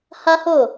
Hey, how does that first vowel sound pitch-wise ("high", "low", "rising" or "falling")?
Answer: high